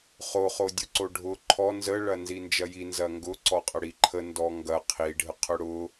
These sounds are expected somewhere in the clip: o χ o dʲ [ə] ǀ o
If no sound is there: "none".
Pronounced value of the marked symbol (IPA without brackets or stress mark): ʊ